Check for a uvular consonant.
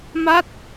absent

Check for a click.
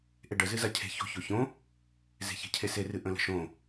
absent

